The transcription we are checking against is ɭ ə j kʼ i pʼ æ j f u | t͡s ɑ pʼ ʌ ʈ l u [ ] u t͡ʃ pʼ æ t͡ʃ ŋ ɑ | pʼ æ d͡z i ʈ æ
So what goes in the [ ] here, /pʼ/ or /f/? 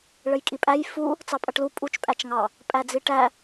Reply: pʼ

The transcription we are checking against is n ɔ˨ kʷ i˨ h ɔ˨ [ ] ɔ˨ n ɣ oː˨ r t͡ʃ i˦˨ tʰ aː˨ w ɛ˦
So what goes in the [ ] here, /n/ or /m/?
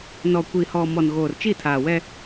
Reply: m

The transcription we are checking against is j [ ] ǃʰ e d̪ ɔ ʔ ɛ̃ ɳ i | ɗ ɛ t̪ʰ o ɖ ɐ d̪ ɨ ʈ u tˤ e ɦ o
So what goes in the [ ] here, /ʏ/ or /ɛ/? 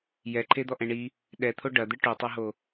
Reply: ɛ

